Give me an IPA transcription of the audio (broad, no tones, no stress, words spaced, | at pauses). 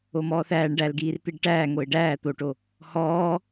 omɔːθæːɳ ɖælɡiːrt̪iɖ ʈæː ŋoɪ̯ɖæː t̪oʈo | hɔː